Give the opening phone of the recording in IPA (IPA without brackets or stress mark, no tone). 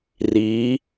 r